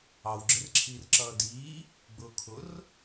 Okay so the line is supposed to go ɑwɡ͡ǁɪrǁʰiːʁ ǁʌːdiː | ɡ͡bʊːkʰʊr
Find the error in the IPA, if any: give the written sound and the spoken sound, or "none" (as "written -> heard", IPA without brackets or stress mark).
ʁ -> r